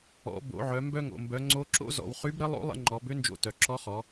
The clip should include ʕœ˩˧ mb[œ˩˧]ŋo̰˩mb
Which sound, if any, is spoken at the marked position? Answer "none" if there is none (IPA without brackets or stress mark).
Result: œ˧